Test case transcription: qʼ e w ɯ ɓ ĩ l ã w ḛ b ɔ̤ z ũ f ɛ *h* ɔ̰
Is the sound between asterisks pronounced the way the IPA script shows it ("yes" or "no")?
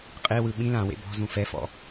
no